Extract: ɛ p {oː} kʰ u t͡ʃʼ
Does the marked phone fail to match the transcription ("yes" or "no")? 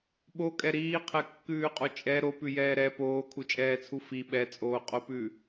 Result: no